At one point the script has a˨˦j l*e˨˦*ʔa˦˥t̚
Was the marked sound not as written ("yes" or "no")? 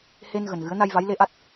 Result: yes